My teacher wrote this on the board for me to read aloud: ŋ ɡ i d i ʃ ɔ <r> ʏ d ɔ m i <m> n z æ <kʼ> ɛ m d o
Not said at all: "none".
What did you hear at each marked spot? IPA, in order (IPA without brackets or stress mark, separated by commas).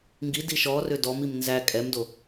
r, m, kʼ